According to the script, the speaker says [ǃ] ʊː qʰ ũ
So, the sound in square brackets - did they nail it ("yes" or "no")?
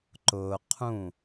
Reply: yes